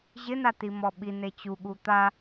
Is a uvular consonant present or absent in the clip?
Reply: absent